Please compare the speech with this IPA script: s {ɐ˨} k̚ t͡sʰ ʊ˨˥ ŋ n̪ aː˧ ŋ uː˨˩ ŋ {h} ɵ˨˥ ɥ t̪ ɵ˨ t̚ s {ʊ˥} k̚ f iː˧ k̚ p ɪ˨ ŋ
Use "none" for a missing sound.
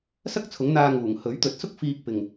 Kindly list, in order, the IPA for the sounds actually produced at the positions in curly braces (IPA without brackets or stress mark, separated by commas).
ɐ˥, h, ʊ˥